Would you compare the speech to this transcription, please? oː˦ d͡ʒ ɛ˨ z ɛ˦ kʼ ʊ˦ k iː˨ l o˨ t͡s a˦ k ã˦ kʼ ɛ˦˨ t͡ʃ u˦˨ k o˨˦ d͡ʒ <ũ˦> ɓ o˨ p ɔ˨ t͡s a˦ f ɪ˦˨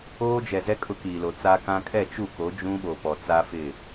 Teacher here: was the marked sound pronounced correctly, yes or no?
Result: yes